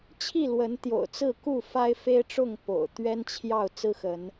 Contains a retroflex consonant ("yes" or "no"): yes